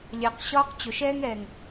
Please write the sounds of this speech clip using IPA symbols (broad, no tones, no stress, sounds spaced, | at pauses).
lʲ ɜ q ɕ ɒː q t͡ɕ ʊ ʃ ɛː ŋ ɛː ŋ